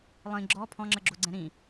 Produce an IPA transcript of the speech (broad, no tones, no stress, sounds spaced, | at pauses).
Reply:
lˠ ĩ ɡ͡ǁ ɔ pʰ ɔ̃ ŋ͡ǁ ə ɡ͡ǁ o ɡ͡ǀ ɛ̃ ɾ ĩ